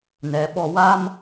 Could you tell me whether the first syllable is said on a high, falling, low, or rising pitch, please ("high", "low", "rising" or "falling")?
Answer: low